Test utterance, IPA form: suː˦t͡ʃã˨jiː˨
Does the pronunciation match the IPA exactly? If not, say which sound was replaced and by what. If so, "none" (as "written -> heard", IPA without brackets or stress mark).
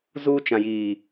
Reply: s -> z